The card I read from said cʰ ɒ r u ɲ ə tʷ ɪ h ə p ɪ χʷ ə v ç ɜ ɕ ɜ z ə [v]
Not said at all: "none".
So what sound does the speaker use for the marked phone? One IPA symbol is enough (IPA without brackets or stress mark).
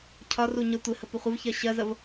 v